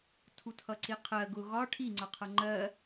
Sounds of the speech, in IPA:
tʰ u tʰ ʌ ǀ i qʰ ɜ ɡ ʊ ɣ ɒ ʈʰ i ŋ͡ǀ ʌ qʰ ʌ ŋ͡ǃ ɜ

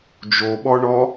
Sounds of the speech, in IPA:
d͡ʒ o ɓ ɔ ɳ ɔ

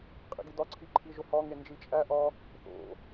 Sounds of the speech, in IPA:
qʼ ḭ ɡ i d ɒ ǀʰ i ǃʰ i ʒ o h ɒ ŋ e n d͡ʒ i t͡ʃʼ æ ʔ ɒ | θ o̰

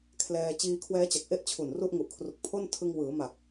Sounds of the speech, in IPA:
kʰ l ɛː˧ t͡ɕ iː˧ kʰ w ɛː˦˥ t͡ɕ a˨˩ k̚ ʔ e˥˩ ʔ t͡ɕʰ u˨˩ n r u˥˩ ʔ ŋ u˨˩ ʔ kʰ r u˨˩ k̚ pʰ o˥˩ n tʰ ɯ˧ ŋ w ɯː˩˦ m a˨˩ k̚

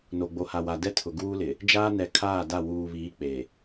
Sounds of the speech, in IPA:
n o˨ ɡ͡b o˨ h a˨ w a˨ d ɛ˦ tʰ ʊ˨ ɡ uː˦ l ɪ˨ | d͡ʒ aː˦ n ɛ˨ kʰ aː˦˨ d a˦˨ w uː˨ β iː˨˦ k͡p e˨

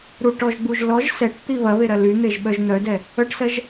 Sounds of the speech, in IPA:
ɾ u ʈ ɔ ʒ ɡ͡b u ʒ l ɔ ʒ s ɛ ʈ t̪ i β ɐ β e ɾ ɐ l y n̪ e ʒ ɓ œ ʒ n̪ œ d ɛ | œ ʈ s ɜ ʒ

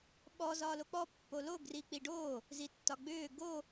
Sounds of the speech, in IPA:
ɓ ɔ z ɒː l o k͡p ɔ pː o l o ɡ r i k͡p i ɖ o | z i tː ɒ ɡ͡b ʏː ɡ o

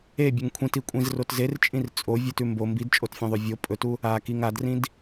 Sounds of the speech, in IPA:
e bʲ ɵ ŋ kʷʰ ĩ t i kʷʼ ĩ z r o t z e r t͡ʃʼ ĩ r t͡sʼ o vʲ ʉ t ʉ m b o m b i d t͡ʃʼ o t fʲ ẽ ðˤ ʉ vʲ o pʼ ɵ t u | a k i ŋ a d r ĩ d

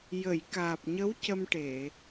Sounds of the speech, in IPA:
j ə˨˩˨ j k aː˨˩ p̚ ɲ ə˧˥ w c ə˧ m ʈ e˨˩˨

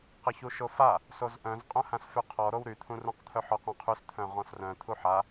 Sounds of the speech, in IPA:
q ə ç u ʃ o f a | s o z ʔ œ̃ z qʼ œ̃ h ã s f y qʰ ɔ ɾ o w ɾ y t̪ʰ ũ r ũ q t̪ʰ œ ħ ɔ q ũ qʰ y s t̪ʰ œ̃ ʁ ɔ̃ s r œ̃ t̪ʰ u ħ a

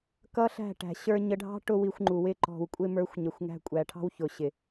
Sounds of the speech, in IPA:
k ʌ˦ ɬ æ̤˦˨ ʈ æ̤˨ ɕ ə˞˧ ɲ ə˧ ɖʱ ɑ̤˦ ʈ ʊ˦ w i˧ xʷ ŋ͡ǃ u˨ w ɪ˦˨ ǃ ɔ̤˨ w kʷʼ ɪ˧ m ə˞˨˦ xʷ ɲ ə˨ xʷ ŋ æ̤˧ kʷʼ æ˨ ʈʰ ɑ̤˦ w ç ʊ˨ ɕ ɪ˨

